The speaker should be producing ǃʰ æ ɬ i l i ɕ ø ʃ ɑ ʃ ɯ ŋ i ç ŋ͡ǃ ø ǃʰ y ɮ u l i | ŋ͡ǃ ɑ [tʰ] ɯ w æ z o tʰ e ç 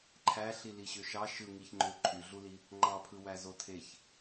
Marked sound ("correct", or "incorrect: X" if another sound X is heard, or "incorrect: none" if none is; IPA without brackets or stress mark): incorrect: pʰ